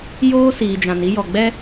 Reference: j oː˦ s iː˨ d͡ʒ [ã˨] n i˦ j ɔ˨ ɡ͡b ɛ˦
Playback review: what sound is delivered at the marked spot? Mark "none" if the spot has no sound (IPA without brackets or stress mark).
ã˨